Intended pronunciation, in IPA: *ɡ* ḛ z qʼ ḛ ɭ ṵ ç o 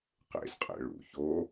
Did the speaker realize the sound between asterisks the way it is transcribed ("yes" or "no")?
no